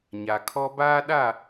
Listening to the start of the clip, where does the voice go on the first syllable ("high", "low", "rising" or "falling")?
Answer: low